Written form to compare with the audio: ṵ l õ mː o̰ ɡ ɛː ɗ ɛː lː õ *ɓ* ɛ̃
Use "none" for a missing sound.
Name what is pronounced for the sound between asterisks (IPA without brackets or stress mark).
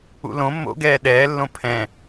pʰ